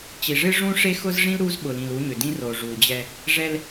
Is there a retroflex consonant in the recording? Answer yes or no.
yes